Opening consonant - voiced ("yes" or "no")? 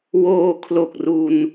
yes